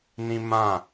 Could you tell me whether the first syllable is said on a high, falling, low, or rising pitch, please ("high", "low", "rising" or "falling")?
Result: high